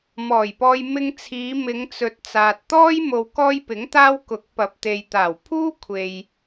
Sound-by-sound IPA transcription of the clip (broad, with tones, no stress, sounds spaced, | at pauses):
m ɔː˨˩ j p ɔː˧ j m ɪ˧ ŋ t͡sʰ iː˨˧ m ɪ˨˧ ŋ t͡s ɵ˨ t̚ t͡s aː˨ t̚ t̪ ɔː˥ j m o˧ w k ɔː˥ j p ɪ˨˥ ŋ t̪ aː˥ w k ʊ˨˥ k̚ p ɐ˨ p̚ t̪ e˨ j t̪ aː˨˩ w pʰ uː˥ kʷʰ e˨ j